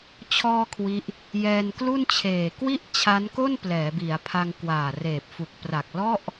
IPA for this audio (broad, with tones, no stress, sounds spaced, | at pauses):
t͡ɕʰ ɔː˧ kʰ w i˦˥ ʔ | j ɛː˧ n k l u˥˩ n t͡ɕʰ eː˨˩ k w i˥˩ ʔ t͡ɕʰ a˦˥ n k o˥˩ n p l ɛː˩˦ b i˩˦ a̯ pʰ a˧ ŋ k w aː˨˩ r eː˨˩ p̚ f u˨˩ k̚ p r a˨˩ k̚ l ɔ˥˩ ʔ